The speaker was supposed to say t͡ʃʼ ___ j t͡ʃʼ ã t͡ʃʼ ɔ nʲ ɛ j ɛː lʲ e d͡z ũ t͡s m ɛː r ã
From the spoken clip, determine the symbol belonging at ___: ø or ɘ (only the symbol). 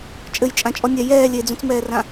ɘ